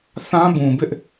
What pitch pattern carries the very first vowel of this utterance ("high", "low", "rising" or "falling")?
high